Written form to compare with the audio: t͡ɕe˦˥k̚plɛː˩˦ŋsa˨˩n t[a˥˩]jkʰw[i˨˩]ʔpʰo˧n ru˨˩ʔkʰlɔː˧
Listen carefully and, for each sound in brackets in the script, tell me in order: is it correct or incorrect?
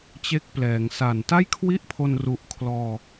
correct, incorrect

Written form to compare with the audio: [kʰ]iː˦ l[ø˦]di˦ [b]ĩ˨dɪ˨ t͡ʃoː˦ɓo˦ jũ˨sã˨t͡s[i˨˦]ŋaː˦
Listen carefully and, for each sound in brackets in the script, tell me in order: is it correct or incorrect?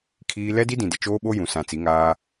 correct, incorrect, incorrect, correct

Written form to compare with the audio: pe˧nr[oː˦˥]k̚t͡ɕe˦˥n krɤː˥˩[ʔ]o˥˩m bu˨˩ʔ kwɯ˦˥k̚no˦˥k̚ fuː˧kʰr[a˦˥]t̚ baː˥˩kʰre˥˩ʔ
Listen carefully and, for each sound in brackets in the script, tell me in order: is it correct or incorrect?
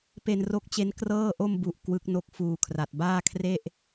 incorrect, correct, incorrect

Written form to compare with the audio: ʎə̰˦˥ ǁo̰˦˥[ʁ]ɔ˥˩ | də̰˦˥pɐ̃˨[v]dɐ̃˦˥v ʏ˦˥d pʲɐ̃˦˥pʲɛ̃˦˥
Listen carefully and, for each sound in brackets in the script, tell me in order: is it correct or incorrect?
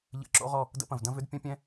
correct, correct

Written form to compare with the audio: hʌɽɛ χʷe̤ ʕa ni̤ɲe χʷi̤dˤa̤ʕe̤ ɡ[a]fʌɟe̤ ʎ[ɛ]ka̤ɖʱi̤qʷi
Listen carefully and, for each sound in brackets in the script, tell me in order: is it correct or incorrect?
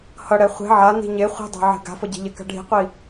incorrect, correct

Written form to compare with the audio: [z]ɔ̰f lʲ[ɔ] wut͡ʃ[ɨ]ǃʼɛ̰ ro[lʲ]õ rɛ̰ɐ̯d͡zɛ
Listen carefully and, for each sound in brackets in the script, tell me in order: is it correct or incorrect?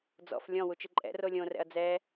incorrect, incorrect, correct, correct

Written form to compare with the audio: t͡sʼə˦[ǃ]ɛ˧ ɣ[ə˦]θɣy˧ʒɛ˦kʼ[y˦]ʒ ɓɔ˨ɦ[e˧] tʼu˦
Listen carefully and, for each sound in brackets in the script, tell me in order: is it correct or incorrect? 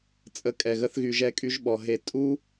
incorrect, correct, correct, correct

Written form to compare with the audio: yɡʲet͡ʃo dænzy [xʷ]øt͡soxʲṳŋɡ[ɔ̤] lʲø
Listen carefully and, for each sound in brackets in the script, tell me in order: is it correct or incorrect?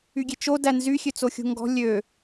incorrect, correct

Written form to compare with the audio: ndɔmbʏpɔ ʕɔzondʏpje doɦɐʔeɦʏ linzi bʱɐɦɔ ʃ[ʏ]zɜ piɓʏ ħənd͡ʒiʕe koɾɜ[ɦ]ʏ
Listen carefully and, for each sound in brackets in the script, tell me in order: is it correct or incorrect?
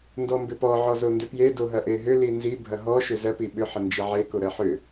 correct, incorrect

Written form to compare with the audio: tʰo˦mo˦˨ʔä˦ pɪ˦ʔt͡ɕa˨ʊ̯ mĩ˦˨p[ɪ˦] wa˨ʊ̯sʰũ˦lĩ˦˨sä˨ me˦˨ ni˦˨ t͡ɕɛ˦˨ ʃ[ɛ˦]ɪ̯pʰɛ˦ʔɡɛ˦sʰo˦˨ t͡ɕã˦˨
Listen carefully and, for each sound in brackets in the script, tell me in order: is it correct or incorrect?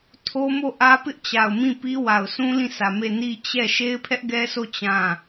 incorrect, incorrect

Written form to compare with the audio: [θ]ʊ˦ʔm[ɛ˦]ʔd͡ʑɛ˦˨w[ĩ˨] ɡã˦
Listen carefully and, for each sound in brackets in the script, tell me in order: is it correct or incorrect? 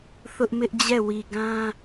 correct, incorrect, incorrect

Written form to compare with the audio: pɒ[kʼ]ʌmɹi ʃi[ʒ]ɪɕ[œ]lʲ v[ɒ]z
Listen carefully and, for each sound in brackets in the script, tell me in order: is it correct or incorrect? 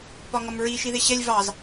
incorrect, incorrect, incorrect, incorrect

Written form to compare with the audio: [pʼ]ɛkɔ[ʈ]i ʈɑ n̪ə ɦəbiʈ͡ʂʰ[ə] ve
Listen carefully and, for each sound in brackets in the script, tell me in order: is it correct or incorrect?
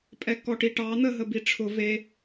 correct, correct, incorrect

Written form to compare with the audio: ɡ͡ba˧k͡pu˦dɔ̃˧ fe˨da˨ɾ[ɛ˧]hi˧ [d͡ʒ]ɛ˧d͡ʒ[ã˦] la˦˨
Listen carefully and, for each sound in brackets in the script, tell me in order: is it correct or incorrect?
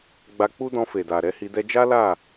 incorrect, incorrect, incorrect

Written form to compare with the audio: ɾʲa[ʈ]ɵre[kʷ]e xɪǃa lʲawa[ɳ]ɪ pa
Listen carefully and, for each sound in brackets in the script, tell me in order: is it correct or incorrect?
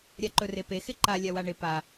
incorrect, incorrect, correct

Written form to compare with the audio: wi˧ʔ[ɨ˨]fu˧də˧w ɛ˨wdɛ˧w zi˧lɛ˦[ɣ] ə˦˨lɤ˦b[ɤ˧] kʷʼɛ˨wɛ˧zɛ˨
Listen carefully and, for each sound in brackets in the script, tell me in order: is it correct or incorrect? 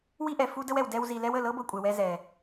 incorrect, incorrect, correct

